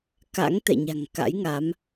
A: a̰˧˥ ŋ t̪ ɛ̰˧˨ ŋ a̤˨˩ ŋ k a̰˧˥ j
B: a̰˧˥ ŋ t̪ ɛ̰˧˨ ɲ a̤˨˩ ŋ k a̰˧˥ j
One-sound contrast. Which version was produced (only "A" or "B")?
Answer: B